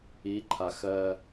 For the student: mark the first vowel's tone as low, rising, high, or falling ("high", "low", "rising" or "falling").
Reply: rising